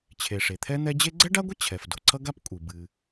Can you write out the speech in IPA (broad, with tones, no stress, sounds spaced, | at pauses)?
t͡ɕʰ e˩ ʂ e˩ t̪ʰ ɛ˥ n̪ ɛ˥ d͡ʑ e˥ ɡ͡ǀ ɛ˥ ɖ a˥ ɡʷ ə˥ t͡ɕʰ ɛ˩ f d o˩ ǀʰ ʌ˥ ɡ a˥ p kʷʼ ɨ˩ b ɨ˩